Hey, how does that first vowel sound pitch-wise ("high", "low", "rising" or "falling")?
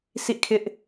falling